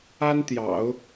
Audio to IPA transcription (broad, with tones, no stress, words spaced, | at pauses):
a˥nt̪jɑ̰˨˩˦ʊ̯